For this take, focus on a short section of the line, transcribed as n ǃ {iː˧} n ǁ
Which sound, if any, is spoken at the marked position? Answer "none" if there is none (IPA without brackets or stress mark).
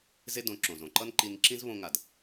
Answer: i˧